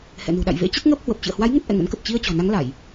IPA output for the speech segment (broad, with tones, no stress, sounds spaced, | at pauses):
h ɛ̰˧˨ n ṳ˨˩ ɗ a̰˧˨ j v ḛ˧˥ t͡ɕ ə˦˥ t̚ ŋ əː˦˥ p̚ h w ə˨˩ p̚ t͡ɕ ɨ̰˧˨ ə̯ h w a˨˦ j ŋ ə˦˥ t̚ ʔ ɛ̰˧˨ ŋ ə̰˧˥ n k ə˨˩ p̚ t͡ɕ i˧ ə̯ t͡ɕ ɔ̤˨˩ n a˨˦ ŋ l a˧˩˨ j